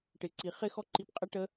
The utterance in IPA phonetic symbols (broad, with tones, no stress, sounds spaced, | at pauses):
ʈ ɪ˨ ǀ i˨ χ ɪ˦ x ɔ˦ ǃ i˧ p qʼ ɛ˦ ʈ ə˦